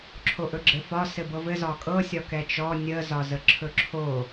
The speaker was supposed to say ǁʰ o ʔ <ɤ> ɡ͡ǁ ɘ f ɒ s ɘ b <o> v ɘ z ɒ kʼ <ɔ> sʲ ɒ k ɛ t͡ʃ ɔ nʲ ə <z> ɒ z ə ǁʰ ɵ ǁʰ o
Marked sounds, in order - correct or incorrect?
incorrect: ɵ, incorrect: ɤ, incorrect: ɤ, correct

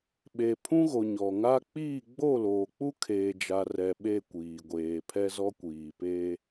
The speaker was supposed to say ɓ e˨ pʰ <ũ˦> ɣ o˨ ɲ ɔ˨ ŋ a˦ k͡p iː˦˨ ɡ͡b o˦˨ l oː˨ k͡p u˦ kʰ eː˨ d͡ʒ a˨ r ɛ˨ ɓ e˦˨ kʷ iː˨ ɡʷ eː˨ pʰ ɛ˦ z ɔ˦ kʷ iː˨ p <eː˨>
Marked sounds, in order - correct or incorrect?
correct, incorrect: eː˦

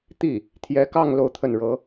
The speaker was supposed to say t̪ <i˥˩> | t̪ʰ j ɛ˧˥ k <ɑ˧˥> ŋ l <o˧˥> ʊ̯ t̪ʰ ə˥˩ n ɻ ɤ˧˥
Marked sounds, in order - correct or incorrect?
correct, incorrect: ɑ˥˧, incorrect: o˥˧

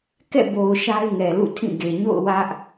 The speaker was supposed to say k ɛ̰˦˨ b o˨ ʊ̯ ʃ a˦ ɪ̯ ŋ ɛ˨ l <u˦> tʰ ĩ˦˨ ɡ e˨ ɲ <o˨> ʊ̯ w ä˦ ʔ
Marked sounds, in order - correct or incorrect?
incorrect: ṵ˦˨, incorrect: o̰˦˨

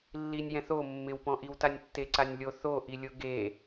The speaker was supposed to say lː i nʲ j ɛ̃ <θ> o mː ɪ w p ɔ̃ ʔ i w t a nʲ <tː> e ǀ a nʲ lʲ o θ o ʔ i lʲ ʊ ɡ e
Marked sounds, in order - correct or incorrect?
correct, correct

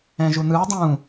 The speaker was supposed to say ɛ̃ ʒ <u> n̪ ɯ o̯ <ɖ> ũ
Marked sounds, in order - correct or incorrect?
correct, incorrect: dˤ

